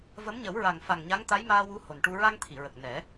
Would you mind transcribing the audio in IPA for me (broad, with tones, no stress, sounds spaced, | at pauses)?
v ə˧˥ m ɲ ə˨˩˦ w ɹ a˨˩ ŋ f a˨˩ ŋ ɲ a˧˥ ŋ t̪ a˧˥ j m aː˧ w u˧˥ h o˨˩ n ʈ u˧ ɹ a˧ ŋ t̪ʰ i˨˩˨ ɹ ə˨˩ k̚ n ɛ˨˩˦